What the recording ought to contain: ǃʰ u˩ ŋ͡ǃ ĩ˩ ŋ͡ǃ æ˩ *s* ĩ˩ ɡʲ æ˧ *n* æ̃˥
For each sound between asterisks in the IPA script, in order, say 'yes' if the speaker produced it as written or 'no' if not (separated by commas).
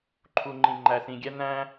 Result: yes, yes